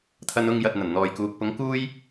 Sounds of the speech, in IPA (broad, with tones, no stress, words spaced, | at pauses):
t̪ʰɐ˧nʊ˧ŋ jɐ˨t̚n̪ɐ˨˩n n̪ɔː˨jkuː˨k̚ pʊ˨˧ŋkuː˧j